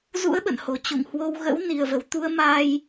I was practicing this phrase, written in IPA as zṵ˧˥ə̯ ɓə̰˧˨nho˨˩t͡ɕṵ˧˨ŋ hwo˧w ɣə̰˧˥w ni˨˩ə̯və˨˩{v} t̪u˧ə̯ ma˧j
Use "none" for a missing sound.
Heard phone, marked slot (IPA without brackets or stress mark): w